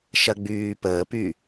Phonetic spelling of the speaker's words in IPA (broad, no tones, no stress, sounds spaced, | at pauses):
ʃ ɐ ɡ͡b yː p əː p y